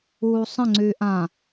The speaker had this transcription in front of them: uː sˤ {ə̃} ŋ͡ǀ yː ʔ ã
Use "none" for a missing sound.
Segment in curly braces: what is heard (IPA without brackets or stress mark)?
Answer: ə̃